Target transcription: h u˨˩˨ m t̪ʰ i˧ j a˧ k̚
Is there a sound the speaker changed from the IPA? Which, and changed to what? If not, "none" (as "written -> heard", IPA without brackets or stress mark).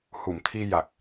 a˧ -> a˨˩